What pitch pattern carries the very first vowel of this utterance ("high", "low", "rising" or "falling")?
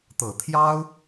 low